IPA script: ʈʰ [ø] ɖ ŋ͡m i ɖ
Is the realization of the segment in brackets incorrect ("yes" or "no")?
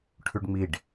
yes